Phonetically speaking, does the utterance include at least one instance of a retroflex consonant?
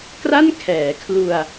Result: no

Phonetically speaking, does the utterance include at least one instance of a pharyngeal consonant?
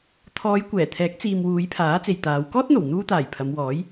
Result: no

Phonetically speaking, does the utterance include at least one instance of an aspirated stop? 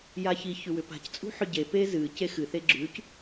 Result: no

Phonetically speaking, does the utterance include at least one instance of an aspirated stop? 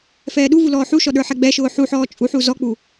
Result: no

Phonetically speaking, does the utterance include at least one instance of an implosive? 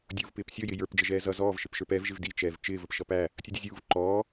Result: no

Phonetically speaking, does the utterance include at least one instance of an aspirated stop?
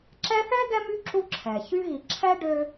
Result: yes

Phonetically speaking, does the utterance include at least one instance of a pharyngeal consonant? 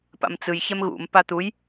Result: no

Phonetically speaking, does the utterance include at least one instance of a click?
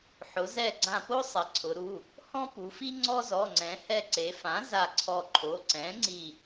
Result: yes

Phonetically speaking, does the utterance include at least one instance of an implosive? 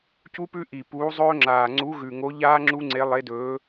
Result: no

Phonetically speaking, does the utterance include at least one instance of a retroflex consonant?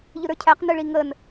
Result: yes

